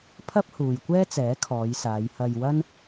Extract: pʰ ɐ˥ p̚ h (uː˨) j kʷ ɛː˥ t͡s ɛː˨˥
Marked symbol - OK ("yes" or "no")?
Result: yes